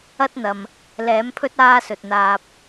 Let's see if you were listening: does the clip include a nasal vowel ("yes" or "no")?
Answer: no